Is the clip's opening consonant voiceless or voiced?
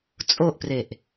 voiceless